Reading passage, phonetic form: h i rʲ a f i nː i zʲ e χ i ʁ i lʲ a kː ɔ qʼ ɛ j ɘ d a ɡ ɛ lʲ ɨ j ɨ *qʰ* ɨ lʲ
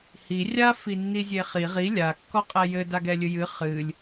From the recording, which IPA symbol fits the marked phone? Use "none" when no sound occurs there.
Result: χ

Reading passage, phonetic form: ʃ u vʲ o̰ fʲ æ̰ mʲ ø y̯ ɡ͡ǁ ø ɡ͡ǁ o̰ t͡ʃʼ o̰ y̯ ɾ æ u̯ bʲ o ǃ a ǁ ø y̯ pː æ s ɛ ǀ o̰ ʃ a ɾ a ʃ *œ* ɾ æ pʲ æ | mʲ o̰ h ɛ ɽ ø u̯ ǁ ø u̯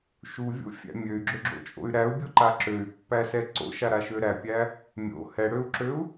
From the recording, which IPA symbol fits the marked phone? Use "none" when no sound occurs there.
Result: ø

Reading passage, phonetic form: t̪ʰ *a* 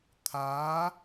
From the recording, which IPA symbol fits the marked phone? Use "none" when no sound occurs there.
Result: a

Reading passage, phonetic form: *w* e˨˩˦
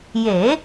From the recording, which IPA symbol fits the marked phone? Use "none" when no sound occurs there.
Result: j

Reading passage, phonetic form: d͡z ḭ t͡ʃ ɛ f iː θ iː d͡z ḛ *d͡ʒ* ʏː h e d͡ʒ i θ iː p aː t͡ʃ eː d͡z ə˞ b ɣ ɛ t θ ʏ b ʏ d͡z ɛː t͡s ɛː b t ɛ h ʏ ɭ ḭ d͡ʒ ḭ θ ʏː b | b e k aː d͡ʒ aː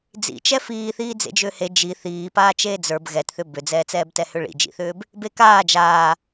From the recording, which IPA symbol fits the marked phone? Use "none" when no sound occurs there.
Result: d͡ʒ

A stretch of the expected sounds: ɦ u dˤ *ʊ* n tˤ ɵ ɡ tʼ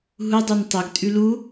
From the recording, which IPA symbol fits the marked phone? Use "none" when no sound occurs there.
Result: ʉ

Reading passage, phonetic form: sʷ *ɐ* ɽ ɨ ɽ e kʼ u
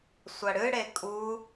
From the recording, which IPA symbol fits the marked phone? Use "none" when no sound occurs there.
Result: ɐ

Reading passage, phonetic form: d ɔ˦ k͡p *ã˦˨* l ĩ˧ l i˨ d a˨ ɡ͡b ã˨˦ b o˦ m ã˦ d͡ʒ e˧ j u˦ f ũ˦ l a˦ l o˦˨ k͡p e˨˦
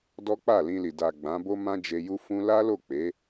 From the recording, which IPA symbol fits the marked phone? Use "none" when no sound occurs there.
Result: a˦˨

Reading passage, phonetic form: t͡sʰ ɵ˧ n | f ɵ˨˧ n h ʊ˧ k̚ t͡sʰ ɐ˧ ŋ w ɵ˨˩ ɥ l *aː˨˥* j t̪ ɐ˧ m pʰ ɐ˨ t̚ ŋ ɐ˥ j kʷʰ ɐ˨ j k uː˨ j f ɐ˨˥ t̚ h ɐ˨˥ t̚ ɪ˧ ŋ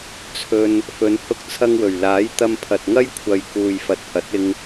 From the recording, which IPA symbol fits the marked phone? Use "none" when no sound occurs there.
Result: aː˨˥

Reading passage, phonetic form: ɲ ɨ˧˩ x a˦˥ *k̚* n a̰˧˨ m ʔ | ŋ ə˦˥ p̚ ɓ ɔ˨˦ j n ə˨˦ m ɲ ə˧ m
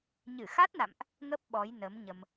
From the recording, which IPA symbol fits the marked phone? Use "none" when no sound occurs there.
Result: t̚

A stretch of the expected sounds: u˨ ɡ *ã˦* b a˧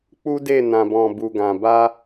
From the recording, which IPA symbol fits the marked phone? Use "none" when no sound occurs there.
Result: ã˨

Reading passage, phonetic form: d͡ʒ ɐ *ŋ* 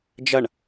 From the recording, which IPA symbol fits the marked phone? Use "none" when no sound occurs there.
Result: ɳ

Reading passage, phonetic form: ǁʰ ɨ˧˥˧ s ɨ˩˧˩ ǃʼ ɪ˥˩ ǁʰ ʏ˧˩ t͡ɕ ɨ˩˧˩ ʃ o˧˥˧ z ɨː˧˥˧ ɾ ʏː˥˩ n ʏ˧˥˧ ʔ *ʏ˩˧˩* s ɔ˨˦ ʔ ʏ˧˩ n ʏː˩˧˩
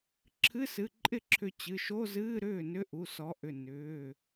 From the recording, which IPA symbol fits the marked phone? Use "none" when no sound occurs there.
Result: u˩˧˩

